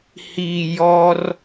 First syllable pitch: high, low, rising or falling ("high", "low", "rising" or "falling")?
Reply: low